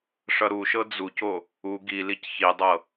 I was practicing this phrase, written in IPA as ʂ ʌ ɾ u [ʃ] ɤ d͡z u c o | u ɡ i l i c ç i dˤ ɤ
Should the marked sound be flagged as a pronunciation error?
no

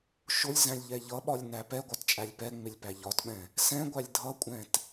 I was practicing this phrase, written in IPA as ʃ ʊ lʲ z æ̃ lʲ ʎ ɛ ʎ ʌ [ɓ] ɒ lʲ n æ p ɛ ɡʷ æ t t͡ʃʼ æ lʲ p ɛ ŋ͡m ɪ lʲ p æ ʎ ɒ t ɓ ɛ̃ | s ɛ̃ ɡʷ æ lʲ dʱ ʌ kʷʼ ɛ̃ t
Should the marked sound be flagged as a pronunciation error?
no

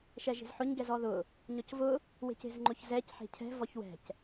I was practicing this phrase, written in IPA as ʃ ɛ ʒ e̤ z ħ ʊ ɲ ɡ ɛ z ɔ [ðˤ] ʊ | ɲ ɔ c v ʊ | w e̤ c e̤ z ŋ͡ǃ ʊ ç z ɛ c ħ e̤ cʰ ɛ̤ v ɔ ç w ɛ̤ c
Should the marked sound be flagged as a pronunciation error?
yes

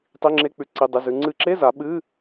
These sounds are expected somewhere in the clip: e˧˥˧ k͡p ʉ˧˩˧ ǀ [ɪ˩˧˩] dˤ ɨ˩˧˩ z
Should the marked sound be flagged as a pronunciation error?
yes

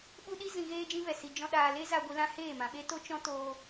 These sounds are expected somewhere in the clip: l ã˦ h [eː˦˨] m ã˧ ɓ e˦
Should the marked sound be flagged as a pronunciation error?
no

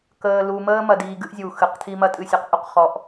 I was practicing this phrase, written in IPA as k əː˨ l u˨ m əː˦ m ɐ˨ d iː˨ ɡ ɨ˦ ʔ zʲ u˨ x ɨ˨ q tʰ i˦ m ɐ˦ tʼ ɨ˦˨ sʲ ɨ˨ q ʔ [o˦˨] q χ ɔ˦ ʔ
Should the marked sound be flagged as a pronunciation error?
yes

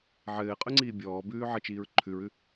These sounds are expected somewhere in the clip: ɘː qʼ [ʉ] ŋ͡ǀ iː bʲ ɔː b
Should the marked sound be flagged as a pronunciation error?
no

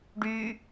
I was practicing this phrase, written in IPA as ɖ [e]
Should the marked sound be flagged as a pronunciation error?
yes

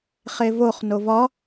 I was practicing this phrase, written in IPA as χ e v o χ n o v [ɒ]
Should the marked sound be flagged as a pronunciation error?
no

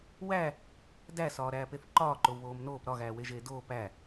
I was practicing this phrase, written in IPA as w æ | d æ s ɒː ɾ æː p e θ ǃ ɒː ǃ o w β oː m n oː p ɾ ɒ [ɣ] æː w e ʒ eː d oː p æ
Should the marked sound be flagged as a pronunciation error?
no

